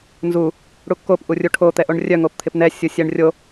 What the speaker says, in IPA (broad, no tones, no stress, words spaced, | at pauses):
nzu | ɽukːop ʔurʲuʈʰo t̪ɛʔoɳrʲœ ŋopt̪ʰɪpnɛ sʲusʲɛɳrʲo